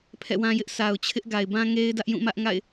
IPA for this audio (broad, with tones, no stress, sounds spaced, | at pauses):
pʰ ɛ̰˦˨ w ã˦ j ɪ˦ ʔ sʰ a˨ ʊ̯ t͡ɕʰ ɪ˦ ʔ ɡ a˨ ɪ̯ b ã˦ ŋ e˦ ɪ̯ d ä˦ ʔ j ũ˦˨ m ä˦ ʔ ŋ a̰˦˨ ɪ̯